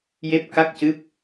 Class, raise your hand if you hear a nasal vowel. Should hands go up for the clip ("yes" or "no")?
no